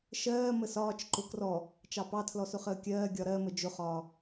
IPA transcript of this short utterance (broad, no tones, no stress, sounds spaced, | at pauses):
ʃ ɜː m ə s ɒː t͡ʃ ǃ ʊ k r ɔ | t͡ʃ ɑ p ɑ tʰ l ɔ s ʊ χ əː kʲ ɜː ɡʲ ɒ ɾ ɜ m ə d͡ʒ ʊ χ ɒː